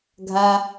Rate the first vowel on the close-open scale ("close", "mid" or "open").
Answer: open